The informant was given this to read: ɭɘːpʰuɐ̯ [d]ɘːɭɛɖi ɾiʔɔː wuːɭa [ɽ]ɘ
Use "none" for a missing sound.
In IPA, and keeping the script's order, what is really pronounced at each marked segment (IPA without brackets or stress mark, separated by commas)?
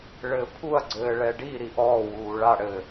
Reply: ɡ͡ǀ, ɽ